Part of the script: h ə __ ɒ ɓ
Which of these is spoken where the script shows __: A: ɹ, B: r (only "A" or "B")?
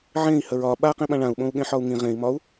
A